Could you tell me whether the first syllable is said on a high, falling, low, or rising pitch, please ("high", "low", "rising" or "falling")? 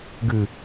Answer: low